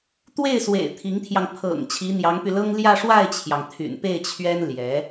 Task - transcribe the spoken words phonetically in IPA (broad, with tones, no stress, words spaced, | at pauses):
t̪we˥˩ɪ̯swḛ˨˩ɪ̯ t̪ʰi˧˥ŋt̪ʰjɑ˧ŋ pʰɤ̰˨˩ŋ t͡ɕʰi˧˥n̪jɑ˧˥ŋpy˧lɤ˥ŋ ljä˥˧ʂwa˥˩ɪ̯t͡ɕʰjɑ˩ŋ t̪ʰy̰˨˩npe˥˩ɪ̯t͡ɕʰɥɛ˥n ljɛ˧˥